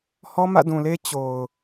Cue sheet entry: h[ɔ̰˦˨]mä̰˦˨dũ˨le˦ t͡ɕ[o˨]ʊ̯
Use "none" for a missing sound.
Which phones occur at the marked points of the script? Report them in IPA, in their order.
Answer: ɔ˦, o˨

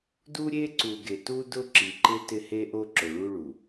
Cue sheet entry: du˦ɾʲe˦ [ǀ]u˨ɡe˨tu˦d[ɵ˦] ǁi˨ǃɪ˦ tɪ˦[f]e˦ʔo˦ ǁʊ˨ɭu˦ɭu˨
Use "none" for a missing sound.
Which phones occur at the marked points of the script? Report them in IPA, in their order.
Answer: ǀ, ʊ˦, h

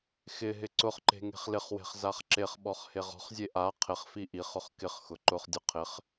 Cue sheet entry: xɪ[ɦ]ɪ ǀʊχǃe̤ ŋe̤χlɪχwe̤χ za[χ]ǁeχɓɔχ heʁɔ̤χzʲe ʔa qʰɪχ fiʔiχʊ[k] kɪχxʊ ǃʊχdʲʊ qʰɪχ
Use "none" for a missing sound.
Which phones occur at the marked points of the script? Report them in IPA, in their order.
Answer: ɦ, χ, χ

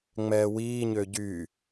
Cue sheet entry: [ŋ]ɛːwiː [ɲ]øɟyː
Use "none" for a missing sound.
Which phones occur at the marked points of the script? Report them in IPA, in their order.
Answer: ŋ͡m, ɲ

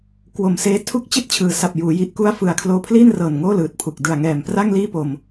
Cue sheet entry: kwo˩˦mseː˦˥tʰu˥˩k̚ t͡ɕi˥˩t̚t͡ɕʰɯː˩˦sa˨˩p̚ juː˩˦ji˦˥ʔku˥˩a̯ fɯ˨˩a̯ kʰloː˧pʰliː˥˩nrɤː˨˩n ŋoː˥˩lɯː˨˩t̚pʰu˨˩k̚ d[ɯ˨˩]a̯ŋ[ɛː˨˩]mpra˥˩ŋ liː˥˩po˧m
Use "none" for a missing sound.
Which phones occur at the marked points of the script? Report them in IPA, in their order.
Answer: ɯ˨˩, ɛː˨˩

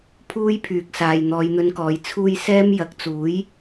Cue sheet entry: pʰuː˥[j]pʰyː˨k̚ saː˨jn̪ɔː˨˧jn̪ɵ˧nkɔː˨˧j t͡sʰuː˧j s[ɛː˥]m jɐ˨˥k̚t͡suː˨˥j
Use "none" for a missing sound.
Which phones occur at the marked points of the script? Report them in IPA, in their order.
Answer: j, ɛː˥

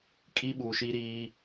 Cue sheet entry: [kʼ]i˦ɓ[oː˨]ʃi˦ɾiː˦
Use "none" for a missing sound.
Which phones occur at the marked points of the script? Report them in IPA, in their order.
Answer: kʼ, uː˨

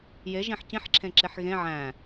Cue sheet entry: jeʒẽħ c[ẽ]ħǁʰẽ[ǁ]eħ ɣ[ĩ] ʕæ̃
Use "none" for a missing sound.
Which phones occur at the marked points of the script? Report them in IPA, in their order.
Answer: ĩ, ǁ, ẽ

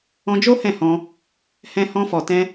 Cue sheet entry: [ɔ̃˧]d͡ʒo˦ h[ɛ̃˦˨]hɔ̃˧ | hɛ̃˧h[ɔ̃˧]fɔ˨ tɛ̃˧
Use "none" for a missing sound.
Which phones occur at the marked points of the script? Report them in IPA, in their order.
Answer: ɔ̃˧, ɛ̃˦˨, ɔ̃˧

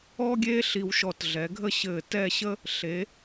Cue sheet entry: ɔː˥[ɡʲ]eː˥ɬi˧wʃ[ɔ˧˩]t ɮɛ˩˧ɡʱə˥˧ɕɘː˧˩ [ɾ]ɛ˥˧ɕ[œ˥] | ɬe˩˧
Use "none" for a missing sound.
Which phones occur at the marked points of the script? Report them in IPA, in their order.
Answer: ɡʲ, ɔ˧˩, t, ə˥

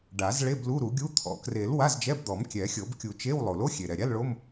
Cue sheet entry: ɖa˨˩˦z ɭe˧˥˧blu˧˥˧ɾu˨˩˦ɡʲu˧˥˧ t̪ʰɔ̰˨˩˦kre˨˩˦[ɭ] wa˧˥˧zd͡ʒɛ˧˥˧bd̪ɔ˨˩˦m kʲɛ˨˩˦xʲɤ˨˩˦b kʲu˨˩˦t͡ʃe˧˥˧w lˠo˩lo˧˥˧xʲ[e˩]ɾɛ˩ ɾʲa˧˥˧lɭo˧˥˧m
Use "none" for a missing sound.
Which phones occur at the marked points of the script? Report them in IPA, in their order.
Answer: l, e˩

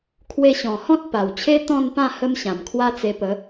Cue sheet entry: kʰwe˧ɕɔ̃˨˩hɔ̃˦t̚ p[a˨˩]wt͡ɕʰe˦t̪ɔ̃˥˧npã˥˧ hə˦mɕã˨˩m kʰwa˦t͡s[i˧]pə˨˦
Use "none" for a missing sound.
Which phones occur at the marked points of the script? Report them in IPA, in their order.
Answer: a˨˩, e˧

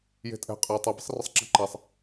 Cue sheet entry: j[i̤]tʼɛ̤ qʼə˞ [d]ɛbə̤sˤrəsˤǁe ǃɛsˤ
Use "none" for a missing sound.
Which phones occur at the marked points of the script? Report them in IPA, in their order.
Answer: e̤, tˤ

